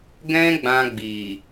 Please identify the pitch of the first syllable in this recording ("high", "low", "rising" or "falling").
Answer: high